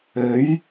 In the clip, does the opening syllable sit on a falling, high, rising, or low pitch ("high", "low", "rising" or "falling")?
rising